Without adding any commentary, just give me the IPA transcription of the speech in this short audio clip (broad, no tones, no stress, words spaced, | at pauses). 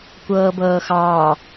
kʷɤːbɤːxɑː